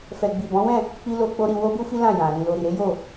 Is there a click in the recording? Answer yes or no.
no